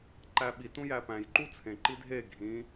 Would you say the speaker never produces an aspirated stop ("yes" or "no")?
no